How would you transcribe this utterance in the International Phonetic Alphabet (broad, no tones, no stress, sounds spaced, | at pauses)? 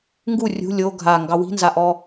ŋ ɡ u rʲ ṳ lʲ o ɡʱ a ŋ ɡ ɑ w i̤ n z a ʔ ɔ